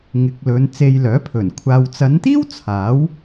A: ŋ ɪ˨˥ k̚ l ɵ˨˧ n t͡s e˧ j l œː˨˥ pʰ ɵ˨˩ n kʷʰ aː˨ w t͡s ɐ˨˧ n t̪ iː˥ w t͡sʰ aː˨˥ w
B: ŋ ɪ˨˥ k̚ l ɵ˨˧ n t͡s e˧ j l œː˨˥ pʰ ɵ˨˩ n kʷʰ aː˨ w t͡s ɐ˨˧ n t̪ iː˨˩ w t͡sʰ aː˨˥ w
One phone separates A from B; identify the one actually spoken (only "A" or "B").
A